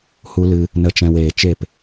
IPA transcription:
h u˧ l ɨ˧ | n ə˨ t͡ʃ ɛ̃˨ w eː˨ t͡ʃ e˦˨ p

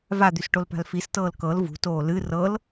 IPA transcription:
v a d̪ y s ʈ o l p a̤ l f i s t ɤː l k ɤ l v ṳ t oː l ɨ r ɤ l

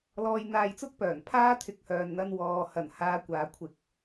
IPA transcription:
l ɔː˧ j n̪ aː˧ j t͡s ʊ˥ k̚ p œː˨˩ n pʰ aː˥ t̪ʰ ɪ˧ k̚ h œː˨ n n̪ ɐ˧ n w ɔː˨ h ɐ˨˩ n h aː˨˧ kʷ aː˨˧ kʷʰ ɪ˧ k̚

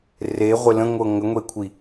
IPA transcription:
r e ʁʷ ɪ l ə̃ ŋʷ ɤ ŋ ə ŋʷ e kʷʰ i

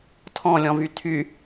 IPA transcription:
tʰ ɔ̃ lʲ ɔ̃ v y tʰ y

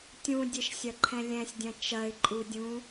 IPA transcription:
tʲ ũ dʲ ɘ ʃ sʲ ɐ ǃʰ ɛ̃ lʲ ɛ̃ sʲ dʲ ɐ̃ t͡ʃ ɐ ɪ̯ ǃʼ u dʲ ũ

